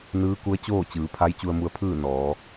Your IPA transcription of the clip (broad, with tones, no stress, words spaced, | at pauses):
nɯː˧˥ku˧˥ə̯t͡ɕoː˥˨ t͡ɕɯː˩˧pʰa˧˥j t͡ɕu˧ə̯mu˧ə̯pʰɯː˥˨ nɔː˩˧